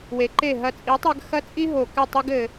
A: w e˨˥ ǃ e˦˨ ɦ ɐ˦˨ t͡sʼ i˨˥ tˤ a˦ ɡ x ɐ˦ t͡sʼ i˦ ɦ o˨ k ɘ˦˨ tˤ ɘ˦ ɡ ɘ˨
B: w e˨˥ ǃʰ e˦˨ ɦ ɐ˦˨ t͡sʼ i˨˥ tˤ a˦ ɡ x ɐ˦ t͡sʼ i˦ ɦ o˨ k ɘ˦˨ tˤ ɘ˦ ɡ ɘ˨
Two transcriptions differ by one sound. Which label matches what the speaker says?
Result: A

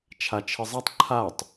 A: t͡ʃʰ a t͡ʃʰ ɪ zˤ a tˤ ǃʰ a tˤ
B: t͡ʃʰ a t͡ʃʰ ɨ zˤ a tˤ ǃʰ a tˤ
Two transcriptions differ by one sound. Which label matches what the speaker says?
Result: A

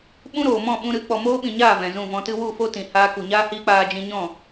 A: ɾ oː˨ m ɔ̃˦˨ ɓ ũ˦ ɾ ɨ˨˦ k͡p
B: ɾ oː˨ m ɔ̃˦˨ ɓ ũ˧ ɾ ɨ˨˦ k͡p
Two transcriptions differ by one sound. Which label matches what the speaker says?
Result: B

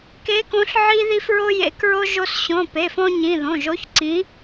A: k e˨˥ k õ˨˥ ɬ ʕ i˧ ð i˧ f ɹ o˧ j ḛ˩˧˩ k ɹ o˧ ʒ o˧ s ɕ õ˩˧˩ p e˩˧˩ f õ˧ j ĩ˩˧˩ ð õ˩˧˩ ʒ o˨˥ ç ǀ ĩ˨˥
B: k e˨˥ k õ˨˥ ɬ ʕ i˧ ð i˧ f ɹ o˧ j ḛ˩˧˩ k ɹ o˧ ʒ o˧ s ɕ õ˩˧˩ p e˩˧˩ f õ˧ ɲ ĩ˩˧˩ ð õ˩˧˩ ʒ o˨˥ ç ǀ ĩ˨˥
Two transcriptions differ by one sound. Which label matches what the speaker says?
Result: B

